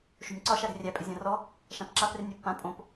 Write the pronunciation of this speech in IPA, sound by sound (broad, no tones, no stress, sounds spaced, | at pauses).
ʃ o̤ nʲ ǀ ɒ ʃ a ɾ ɛ̤ rʲ æ pʼ ɪ zʲ ã r ɔ | ʃ ã p ǁ a p r ɪ nʲ æ pː ã pʼ õ p